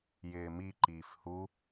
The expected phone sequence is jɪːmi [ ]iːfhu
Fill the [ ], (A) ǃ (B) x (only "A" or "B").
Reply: A